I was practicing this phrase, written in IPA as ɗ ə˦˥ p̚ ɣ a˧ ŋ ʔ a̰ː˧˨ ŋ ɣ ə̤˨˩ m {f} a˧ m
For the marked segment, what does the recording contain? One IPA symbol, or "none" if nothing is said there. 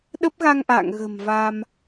v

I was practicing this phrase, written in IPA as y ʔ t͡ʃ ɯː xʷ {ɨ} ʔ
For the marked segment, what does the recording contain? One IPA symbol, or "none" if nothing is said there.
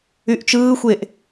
e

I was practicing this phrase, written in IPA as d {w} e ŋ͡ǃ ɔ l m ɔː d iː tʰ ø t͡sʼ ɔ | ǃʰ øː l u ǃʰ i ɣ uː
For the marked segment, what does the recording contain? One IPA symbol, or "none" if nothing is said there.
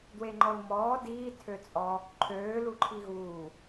w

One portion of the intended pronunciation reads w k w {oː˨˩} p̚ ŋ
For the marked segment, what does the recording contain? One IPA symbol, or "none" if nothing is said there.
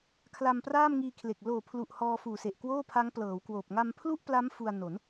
oː˨˩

